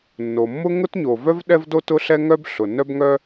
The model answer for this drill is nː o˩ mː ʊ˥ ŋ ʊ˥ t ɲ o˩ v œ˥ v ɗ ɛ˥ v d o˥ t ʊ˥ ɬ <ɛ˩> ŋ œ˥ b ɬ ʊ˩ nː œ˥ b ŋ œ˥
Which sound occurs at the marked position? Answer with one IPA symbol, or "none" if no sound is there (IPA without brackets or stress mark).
ɛ˥